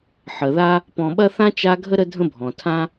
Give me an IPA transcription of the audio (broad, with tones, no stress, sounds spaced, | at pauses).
ħ ə˩ ð a˥ | p ɔ̃˨ ɓ ɐ˥ θ ã˥ t͡ʃ a˦ ɡʱ ə˥ ɾ ə˥ dʱ ə̃˥ bʱ ɔ̃˩ tʰ ã˥